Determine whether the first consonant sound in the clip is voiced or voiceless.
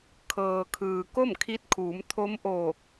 voiceless